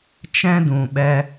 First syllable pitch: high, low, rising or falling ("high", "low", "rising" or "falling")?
high